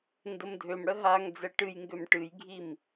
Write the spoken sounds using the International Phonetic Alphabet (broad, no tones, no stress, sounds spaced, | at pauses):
n d ə m dʱ ø m ɽ ə ɦ a ŋ d͡z ɛ ʈ ɨ j ŋ ɡ ø m ʈ ɨ j ɡʱ i m